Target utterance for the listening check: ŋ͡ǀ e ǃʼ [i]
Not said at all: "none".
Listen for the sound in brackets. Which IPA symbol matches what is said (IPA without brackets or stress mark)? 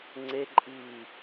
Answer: iː